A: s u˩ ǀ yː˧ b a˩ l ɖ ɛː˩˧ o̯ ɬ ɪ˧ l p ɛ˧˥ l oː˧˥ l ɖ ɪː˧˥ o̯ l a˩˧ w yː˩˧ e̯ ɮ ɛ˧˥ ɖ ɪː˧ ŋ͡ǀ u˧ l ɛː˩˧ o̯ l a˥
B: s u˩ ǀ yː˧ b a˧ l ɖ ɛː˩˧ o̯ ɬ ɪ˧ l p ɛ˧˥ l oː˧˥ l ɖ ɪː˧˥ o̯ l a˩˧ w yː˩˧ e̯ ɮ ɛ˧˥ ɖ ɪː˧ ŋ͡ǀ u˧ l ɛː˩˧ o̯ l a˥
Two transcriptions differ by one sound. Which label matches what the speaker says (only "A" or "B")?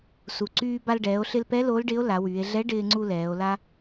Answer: B